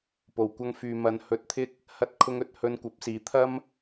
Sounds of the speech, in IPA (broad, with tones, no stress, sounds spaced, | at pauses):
p o˨ w kʷ ɐ˥ ŋ f yː˧ m ɐ˨˧ n h ɵ˧ t̚ t̪ʰ ɪ˥ k̚ | h ɐ˥ t̚ kʰ ʊ˥ ŋ ɵ˥ t̚ h ɵ˧ n kʷ ɐ˨˥ p̚ s iː˨˧ t̪ʰ ɐ˥ m